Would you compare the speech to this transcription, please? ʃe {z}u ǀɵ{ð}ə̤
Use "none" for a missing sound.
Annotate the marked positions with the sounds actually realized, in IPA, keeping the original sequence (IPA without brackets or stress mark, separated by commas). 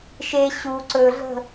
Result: ɕ, ɮ